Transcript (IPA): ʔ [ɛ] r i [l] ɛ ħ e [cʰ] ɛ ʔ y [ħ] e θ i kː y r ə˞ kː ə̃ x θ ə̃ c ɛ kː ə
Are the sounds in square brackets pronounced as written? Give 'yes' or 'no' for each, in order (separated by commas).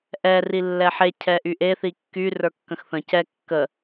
yes, no, yes, no